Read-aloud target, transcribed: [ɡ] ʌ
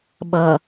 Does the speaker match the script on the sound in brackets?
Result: no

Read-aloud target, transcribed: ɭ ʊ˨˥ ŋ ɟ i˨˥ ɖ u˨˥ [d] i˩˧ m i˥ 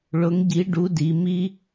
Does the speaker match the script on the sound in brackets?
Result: yes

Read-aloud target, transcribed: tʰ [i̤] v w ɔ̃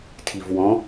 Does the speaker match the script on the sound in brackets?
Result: no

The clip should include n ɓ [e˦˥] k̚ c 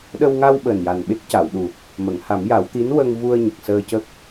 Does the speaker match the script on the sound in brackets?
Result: yes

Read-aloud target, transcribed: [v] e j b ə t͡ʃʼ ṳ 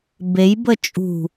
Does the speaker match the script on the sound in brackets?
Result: no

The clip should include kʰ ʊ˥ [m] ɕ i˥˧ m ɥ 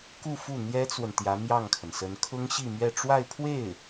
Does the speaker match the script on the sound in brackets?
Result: no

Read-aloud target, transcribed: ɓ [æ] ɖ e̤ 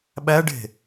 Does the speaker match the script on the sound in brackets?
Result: yes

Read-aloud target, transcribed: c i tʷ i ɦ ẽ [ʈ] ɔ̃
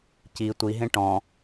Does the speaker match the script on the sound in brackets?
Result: yes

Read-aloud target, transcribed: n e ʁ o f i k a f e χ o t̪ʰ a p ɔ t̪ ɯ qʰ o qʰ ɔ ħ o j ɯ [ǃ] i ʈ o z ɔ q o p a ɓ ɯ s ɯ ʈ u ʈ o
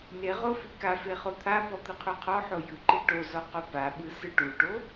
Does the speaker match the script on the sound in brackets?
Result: yes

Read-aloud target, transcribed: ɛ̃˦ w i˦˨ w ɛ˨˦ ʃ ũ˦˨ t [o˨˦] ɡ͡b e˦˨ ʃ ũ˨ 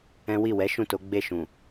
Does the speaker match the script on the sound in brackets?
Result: yes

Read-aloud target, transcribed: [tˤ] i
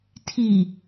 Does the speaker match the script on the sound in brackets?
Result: no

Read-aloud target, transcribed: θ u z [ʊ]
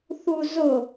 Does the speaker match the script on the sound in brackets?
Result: yes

